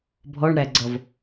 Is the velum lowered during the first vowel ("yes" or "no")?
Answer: no